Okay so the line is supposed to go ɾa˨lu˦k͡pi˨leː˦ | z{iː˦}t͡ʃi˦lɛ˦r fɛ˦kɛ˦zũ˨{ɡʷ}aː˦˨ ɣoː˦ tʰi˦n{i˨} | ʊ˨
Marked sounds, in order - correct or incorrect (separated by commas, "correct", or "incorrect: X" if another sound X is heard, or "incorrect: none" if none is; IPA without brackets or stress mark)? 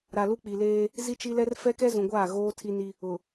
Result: incorrect: i˦, correct, incorrect: i˦